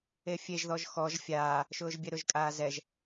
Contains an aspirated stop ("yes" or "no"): no